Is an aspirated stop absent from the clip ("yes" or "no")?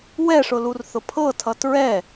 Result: no